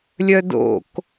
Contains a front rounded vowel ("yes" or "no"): yes